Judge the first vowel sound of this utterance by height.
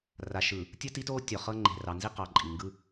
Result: low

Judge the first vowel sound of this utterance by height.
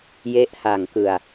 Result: mid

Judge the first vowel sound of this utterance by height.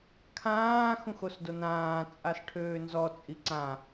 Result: low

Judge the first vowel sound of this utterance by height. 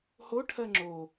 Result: mid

